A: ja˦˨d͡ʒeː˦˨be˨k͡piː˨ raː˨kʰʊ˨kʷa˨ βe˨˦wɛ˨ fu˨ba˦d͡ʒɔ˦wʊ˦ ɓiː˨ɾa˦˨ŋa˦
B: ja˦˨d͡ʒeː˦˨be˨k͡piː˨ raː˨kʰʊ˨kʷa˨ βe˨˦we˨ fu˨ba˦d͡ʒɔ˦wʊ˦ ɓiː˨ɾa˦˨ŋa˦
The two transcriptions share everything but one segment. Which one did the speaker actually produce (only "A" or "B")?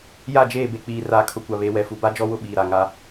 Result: A